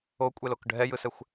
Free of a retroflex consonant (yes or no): no